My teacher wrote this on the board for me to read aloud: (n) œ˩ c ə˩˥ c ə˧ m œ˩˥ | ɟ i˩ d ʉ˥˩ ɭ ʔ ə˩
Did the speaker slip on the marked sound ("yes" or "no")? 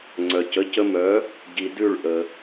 yes